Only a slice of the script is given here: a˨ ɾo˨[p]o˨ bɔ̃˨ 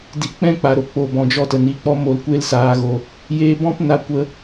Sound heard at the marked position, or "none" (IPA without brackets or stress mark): k͡p